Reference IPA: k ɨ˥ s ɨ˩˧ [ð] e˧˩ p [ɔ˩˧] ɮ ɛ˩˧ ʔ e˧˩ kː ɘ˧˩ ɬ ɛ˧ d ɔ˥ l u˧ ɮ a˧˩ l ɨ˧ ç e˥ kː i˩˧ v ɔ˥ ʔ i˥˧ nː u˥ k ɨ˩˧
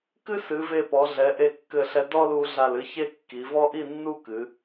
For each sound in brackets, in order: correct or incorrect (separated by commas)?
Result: incorrect, correct